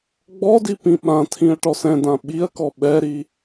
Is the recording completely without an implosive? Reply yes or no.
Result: no